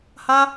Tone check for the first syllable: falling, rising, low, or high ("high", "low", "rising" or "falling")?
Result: high